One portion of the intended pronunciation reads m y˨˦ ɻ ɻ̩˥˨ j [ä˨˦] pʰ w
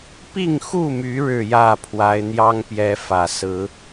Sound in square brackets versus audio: incorrect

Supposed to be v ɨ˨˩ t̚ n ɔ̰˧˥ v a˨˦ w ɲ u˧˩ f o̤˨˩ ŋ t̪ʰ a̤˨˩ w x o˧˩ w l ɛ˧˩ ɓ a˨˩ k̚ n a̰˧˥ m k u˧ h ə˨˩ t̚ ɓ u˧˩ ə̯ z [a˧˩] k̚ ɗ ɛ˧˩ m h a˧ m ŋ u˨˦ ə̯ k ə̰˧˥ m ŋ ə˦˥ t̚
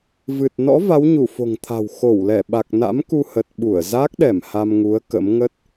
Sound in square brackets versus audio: incorrect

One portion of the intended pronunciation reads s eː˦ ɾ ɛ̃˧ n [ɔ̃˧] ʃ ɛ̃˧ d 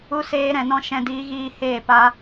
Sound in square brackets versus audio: incorrect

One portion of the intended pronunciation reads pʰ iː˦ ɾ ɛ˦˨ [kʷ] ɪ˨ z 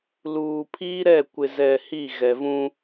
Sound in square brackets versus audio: correct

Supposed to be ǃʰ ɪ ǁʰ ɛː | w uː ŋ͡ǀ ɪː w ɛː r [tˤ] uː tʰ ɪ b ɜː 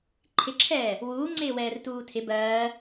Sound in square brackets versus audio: incorrect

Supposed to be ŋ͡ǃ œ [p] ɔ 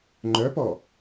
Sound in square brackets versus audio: correct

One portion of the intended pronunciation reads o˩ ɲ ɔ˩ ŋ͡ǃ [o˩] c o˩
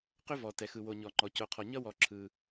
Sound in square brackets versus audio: incorrect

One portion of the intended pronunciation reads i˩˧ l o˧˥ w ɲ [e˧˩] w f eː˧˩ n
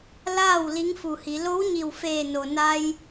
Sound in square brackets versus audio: incorrect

